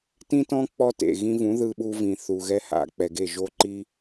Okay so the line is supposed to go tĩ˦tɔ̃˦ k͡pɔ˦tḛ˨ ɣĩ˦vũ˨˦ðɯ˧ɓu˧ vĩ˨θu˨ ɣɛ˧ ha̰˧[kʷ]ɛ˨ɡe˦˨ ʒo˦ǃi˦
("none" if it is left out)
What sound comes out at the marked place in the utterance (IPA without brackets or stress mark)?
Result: k͡p